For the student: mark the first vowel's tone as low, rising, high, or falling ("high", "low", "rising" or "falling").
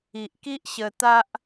low